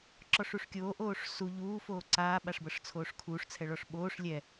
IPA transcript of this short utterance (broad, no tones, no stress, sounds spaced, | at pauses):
ǁ ɔ ʂ u ʂ kʲ oː ʔ oː ʂ s u ʎ uː f oː ǀ aː ɓ a ʂ b ɤ ʂ t͡sʰ oː ʂ kʰ uː ʂ t͡sʰ ɛ ɭ ɔ ʂ ɓ oː ʂ lʲ ɛ